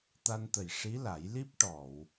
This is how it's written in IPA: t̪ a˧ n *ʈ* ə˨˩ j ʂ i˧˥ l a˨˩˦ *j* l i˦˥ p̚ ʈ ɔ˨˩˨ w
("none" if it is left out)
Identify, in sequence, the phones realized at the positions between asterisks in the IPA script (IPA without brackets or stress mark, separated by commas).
t̪, j